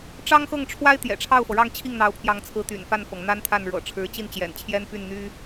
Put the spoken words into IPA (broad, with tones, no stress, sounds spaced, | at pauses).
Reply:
ʈ͡ʂ ɑ˥ ŋ x ɤ˥˩ ŋ ʈ͡ʂʰ w a˥ ɪ̯ t̪ j ɛ̰˨˩ ʈ͡ʂʰ ɑ˥˩ ʊ̯ f ɤ˩ ɻ ɑ˥˧ ŋ t͡ɕʰ i˥˩ ŋ n̪ ɑ˧˥ ʊ̯ pʰ j ɑ˧˥ ŋ t͡sʰ ɹ̩˧˥ t̪ y̰˨˩ n f a˥˩ n f ɤ˩ ŋ n̪ a˥ n t̪ʰ a˥˩ n ɻ ɤ̰˨˩ ʈ͡ʂʰ ɻ̩˧˥ t͡ɕ i˥˩ n t͡ɕ j ɛ̰˨˩ n t͡ɕʰ j ɛ˥ n p y˥˩ n n̪ y˥